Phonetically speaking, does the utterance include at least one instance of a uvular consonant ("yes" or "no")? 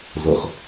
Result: yes